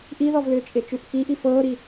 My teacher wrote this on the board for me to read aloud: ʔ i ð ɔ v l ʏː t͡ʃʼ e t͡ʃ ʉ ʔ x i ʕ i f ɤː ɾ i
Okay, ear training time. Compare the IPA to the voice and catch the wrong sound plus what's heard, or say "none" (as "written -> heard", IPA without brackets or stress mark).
ʕ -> ʔ